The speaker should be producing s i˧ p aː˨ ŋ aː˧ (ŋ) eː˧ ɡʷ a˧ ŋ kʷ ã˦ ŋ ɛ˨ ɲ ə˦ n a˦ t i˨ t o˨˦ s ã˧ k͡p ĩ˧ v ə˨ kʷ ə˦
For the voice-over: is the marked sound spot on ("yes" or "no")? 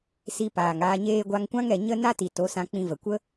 no